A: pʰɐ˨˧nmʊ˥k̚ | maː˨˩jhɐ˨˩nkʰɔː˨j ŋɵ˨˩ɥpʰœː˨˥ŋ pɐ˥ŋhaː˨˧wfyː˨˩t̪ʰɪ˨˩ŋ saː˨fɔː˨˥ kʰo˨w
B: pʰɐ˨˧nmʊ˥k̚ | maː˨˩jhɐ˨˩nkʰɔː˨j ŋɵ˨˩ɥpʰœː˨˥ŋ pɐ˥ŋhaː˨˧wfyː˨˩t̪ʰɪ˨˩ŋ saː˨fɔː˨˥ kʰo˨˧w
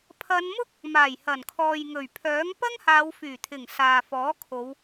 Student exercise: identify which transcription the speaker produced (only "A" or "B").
B